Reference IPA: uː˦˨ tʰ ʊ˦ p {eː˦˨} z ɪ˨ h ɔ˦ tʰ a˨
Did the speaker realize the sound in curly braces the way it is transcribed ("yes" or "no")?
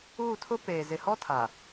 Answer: no